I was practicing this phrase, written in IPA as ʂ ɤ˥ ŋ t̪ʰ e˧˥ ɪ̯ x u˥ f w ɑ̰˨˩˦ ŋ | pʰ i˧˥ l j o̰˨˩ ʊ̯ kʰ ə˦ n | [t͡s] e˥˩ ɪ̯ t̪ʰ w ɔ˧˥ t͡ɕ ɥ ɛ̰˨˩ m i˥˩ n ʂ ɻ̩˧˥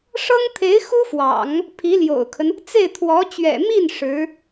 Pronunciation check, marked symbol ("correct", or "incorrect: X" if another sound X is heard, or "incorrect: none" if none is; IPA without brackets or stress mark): correct